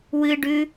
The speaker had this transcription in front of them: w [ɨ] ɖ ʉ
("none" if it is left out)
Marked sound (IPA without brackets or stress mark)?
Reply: ɨ